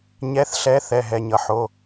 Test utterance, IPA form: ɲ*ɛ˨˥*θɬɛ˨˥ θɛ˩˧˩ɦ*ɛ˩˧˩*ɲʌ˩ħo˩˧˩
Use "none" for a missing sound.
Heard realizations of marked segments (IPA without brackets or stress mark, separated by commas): ɛ˨˥, ɛ˩˧˩